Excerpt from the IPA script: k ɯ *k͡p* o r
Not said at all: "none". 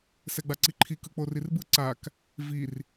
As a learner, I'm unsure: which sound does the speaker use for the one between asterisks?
k͡p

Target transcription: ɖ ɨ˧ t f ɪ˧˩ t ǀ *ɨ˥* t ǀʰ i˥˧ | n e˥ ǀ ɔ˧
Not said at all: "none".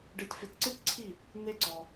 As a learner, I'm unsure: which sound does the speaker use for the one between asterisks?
ɨ˥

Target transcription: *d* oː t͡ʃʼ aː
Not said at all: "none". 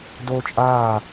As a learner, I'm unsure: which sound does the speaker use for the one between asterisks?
d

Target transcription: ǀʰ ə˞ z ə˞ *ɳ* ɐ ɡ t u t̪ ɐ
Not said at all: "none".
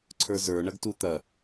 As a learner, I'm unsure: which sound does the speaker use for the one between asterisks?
ɳ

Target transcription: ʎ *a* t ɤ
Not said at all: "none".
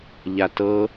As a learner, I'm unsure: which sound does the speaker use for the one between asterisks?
a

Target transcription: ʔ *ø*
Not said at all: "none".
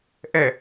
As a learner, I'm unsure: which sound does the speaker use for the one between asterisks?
ɛ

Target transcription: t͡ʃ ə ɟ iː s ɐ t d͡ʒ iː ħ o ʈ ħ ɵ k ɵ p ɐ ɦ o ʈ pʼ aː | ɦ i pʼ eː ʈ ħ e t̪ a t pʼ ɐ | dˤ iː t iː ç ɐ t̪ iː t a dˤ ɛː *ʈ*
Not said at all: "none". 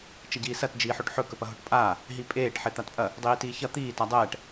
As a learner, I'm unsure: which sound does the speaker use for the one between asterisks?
ʈ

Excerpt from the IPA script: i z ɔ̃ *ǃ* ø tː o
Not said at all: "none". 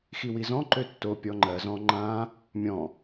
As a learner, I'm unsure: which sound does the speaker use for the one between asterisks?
ǃ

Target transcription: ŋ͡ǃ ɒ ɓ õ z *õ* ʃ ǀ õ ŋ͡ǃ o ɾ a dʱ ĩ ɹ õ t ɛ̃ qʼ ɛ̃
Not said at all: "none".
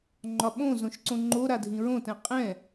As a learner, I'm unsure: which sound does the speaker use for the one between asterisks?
õ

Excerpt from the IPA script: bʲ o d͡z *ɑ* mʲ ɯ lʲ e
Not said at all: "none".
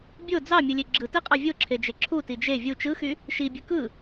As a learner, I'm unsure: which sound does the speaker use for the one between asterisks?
ɑ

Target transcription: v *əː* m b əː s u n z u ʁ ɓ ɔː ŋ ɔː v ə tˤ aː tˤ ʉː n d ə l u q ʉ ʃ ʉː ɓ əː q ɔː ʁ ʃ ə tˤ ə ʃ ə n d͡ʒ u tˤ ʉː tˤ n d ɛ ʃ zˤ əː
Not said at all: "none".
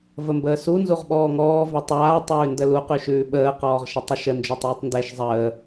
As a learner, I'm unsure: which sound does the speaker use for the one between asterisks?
ə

